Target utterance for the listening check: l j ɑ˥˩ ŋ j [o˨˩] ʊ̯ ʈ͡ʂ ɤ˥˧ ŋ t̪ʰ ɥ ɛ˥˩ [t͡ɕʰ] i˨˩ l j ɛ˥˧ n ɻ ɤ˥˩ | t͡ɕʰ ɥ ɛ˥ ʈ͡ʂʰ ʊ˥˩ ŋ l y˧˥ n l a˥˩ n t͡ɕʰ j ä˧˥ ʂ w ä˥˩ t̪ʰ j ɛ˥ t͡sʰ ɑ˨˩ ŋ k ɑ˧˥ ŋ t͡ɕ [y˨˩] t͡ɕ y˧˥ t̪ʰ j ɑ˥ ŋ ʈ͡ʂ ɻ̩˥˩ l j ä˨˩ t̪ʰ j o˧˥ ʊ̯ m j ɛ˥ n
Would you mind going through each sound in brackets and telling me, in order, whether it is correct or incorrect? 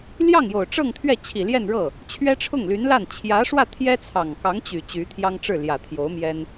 correct, correct, correct

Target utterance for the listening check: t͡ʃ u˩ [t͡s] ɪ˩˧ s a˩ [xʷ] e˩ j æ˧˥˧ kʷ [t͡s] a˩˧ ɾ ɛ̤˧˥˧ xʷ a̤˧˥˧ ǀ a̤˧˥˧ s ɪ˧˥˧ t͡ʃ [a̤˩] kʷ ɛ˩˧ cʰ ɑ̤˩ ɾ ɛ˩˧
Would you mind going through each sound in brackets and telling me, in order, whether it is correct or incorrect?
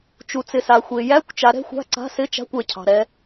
correct, correct, incorrect: t͡ʃ, incorrect: a̤˧˥˧

